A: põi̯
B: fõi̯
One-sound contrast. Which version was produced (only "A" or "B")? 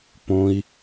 A